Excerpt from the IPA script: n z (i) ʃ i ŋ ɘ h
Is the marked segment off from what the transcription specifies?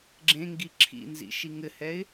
yes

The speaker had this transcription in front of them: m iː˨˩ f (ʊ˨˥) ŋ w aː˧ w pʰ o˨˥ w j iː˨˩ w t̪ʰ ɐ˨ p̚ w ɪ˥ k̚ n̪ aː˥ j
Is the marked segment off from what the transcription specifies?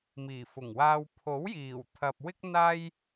yes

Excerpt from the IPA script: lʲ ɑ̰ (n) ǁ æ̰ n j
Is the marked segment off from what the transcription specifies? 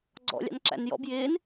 no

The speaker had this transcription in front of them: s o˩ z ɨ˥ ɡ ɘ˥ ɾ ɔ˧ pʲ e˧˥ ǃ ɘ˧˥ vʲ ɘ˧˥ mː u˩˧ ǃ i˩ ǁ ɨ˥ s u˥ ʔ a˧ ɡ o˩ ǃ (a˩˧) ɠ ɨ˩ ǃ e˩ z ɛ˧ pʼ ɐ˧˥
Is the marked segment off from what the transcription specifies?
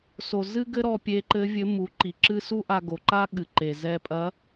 yes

